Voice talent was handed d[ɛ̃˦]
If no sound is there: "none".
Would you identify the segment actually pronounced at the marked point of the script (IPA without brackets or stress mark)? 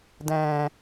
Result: ɛ̃˨